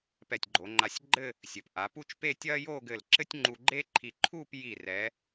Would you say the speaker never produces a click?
no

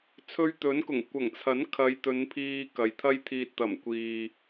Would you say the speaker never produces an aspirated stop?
no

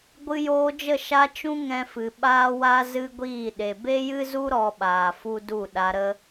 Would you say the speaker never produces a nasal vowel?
no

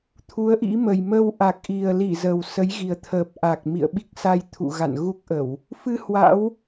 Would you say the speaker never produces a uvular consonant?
yes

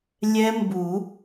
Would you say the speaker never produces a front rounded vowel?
yes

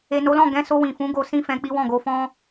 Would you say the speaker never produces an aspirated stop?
yes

